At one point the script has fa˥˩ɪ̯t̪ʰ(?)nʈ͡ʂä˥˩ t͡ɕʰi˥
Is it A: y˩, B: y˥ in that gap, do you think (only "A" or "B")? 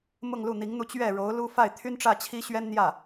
B